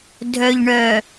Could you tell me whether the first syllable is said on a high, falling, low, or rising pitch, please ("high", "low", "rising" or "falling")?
low